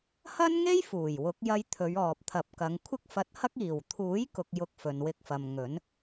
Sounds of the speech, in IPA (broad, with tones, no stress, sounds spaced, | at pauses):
h ɐ˥ n ŋ e˥ j f uː˨˩ j w ʊ˨˥ k̚ j ɐ˧ j t̪ʰ ɵ˨˧ ɥ ɔː˨ p̚ t̪ʰ ɐ˨˥ p̚ k ɐ˨˧ ŋ kʷʰ ɪ˥ k̚ f ɐ˧ t̚ h ɐ˥ k̚ iː˨˩ w t̪ʰ uː˨˥ j k ʊ˥ k̚ j ʊ˥ k̚ f ɵ˨ n w ɪ˧ k̚ f ɐ˨ m ŋ ɵ˨˥ n